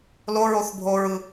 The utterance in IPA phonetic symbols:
l o ɹ o θ bʱ o ɹ ɯ

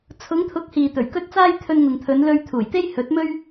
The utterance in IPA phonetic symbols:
t͡sʰ ʊ˨˧ ŋ t̪ʰ ʊ˨˥ k̚ h iː˨ t̪ ɵ˨˩ ɥ k ɵ˥ t̚ t͡s aː˥ j t̪ʰ ɵ˧ n ŋ ʊ˨ ŋ t̪ʰ ɵ˨˧ n l ɵ˧ ɥ t̪ʰ uː˨˩ j t̪ e˥ j h ɵ˨˥ t̚ m ɵ˥ ɥ

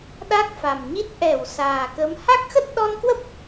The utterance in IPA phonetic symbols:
ɗ a˦˥ k̚ f a˨˩ m ɲ i˦˥ t̚ ʔ ɛ˧˩ w s aː˨˩ k ə˨˦ m h a˦˥ k̚ x ə˦˥ t̚ ɗ ɔ˧ n k w ə˦˥ p̚

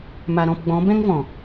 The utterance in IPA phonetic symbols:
m a˨ ɾ ɔ̃˦˨ p ɡ͡b ɔ̃˨˦ b ɛ̃˦ ŋ v ɔ̃˨

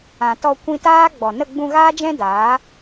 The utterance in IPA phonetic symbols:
ã˨ t ɔ˧ kʷ ĩ˧ t aː˦ ɡ͡b ɔ˨ n ə˦˨ ɡ͡b ũ˧ ɣ aː˦ d͡ʒ ɛ̃˦ d aː˨˦

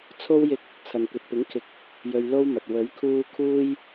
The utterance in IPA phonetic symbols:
t͡sʰ o˥ w j ɪ˧ k̚ | t͡sʰ ɐ˨ n kʷ ɐ˨ t̚ p ɪ˨˥ ŋ kʰ ɪ˨˥ k̚ | j ɵ˧ ɥ l o˥ w m ɐ˨ t̚ w ɵ˨˥ ɥ kʰ uː˧ kʰ uː˧ j

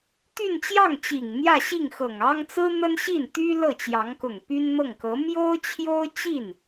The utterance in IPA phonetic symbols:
t̪ y˥˧ n t͡ɕ j ɑ˥˩ ŋ t͡ɕ i˨˩ ŋ n̪ j ä˥˧ ɕ i˥˩ ŋ x ɤ˨˩ ŋ ɑ˥ ŋ t͡s ɹ̩˥ n̪ ə˥ n ɕ i˥˩ n t̪ y˥ l ɤ˥˩ t͡ɕ j ɑ˧˥ ŋ k ʊ˨˩ ŋ p y˥ n n̪ ɤ˥˩ ŋ k ɤ˧˥ m j o˥ ʊ̯ t͡ɕʰ j o˥ ʊ̯ t͡ɕ i˥˩ n

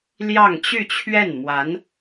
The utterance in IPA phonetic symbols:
l j ɑ˥˧ ŋ t͡ɕ y˥˧ t͡ɕʰ ɥ ɛ˥˩ n m w a˧˥ n

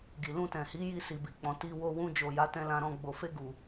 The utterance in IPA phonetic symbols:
ɡ i˨ l ũ˧ t ɛ̃˨ h i˨˦ j i˧ s i˨ b i˨ k͡p ɔ̃˨ t i˧ w o˧ w ũ˧ d͡ʒ o˨ j a˨˦ t ɛ̃˧ l ã˧ ɾ ɔ̃˧ ɡ͡b o˨ f e˧ ɡ u˨

